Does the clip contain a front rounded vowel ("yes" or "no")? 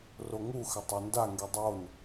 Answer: no